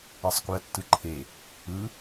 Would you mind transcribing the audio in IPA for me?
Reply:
e sˤ k u ɐ̯ tː ɯ ǃʰ e | ɯ

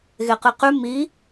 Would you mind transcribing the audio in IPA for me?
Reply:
ɣ e q ɨ q ʉ m i

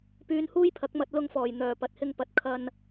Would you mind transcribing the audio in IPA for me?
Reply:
p yː˧ n h uː˥ j pʰ ɐ˨˥ k̚ m ɐ˧ t̚ l ʊ˧ ŋ f ɔː˨˩ j n̪ œː˨˩ p ɐ˨˥ t̚ h ɪ˧ ŋ p ɐ˨˥ t̚ kʰ ɐ˧ n

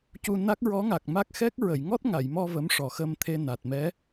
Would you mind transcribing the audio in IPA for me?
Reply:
c u˧ n a˦˥ k̚ ɹ ɔ˧˥ ŋ a˨˩ k̚ m a˦˥ k̚ x ɛ˦˥ k̚ ɹ ə˨˩˨ j ŋ ɔ˦˥ t̚ ŋ a˨˩˨ j m ɔ˧ v ə˧˥ m ʂ ɔ˨˩ x ə˧ m t̪ʰ e˧ n a˨˩ t̚ m ɛ˧˥

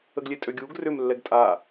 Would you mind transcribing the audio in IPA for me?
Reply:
ə ɡ lʲ e tʼ ø ɡʲ uː ɡ r ʏ m lː ɛ ɡ tʼ a

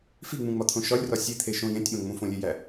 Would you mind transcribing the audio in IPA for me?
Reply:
f i ŋ͡m ũ ŋ͡m ɒ t̪ʰ õ ʃ ɒ lʲ r ɒ sʲ e t̪ʰ e ʃ õ j ẽ tʲ ɓ õ ŋ͡m ũ f õ lʲ e j æ

